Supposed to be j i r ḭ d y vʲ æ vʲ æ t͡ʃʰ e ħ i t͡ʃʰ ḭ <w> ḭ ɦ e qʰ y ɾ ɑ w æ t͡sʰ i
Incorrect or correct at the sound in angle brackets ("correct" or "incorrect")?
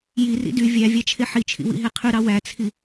correct